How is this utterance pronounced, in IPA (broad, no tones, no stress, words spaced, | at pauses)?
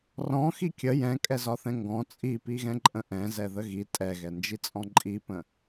rɔ̃xi kʲə jɛ̃kʼɛzɒθɛ̃ ŋɡɔ̃ t͡sʼipiɣɛ̃ǃʼə̃ ʔɛ̃zɛðə ɣi tʼɛɣɛnd͡ʒit͡sʼɔ̃ ǃʼipə̃